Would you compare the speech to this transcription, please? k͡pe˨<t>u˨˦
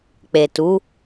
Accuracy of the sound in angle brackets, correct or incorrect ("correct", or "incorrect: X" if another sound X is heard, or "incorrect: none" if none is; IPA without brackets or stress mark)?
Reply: correct